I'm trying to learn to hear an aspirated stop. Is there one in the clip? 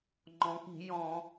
no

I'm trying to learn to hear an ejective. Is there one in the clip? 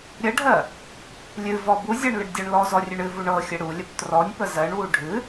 no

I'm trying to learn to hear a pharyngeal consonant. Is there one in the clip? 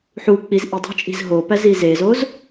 yes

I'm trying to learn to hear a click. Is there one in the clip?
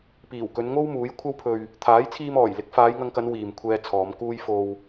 no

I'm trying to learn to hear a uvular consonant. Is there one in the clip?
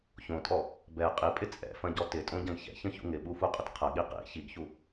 yes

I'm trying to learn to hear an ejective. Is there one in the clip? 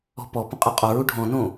yes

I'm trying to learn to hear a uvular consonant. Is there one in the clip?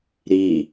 no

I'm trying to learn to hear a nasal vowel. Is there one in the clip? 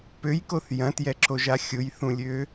yes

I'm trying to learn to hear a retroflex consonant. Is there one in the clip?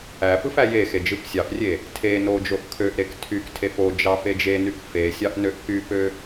no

